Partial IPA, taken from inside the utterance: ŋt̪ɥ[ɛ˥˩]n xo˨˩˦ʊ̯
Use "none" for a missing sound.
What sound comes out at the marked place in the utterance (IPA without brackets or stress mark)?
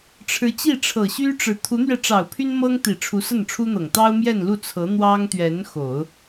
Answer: ɛ˧˥